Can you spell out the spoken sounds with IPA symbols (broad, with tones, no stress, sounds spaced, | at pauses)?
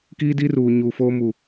k iː˦ d i˦ r uː˨ ɲ uː˨ f oː˦ m u˨